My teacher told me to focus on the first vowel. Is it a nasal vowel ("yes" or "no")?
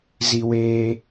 no